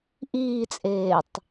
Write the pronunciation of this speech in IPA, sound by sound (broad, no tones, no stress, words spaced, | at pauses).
ʔiːt͡sʼeːtˤ